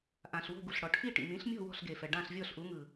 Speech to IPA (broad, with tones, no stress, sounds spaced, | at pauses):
ʔ ã˩ ɬ w o̤˥˩ ɡ u˩ ɬ ɽ ɔ˩ ʈʰ i˥˩ ʈ ḭ˩ m ĩ˩˥ ɬ mʲ ɔ̤˥˩ w ɔ̤˥˩ ɬ ɡ e˩ f ɛ˩ ɖ ã˥˩ ɬ vʲ ɔ˥˩ ɬ ʔ u˩˥ ŋ ɯ˩